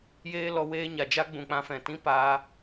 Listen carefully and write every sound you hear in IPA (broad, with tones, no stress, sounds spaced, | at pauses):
j eː˦ l ɔ˧ w eː˦ ɲ a˨ d͡ʒ a˦ ɡ͡b ũ˨ k͡p ã˧ f ɛ̃˨ t ĩ˦ p aː˧